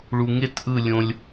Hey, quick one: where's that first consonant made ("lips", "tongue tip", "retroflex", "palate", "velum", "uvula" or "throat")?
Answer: retroflex